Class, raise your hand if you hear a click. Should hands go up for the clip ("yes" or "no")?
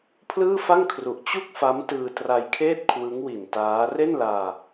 no